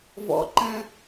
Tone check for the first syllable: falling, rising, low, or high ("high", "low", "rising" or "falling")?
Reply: low